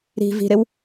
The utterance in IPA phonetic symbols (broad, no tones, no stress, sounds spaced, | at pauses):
ɾ i̤ v i̤ ɾ ɪ w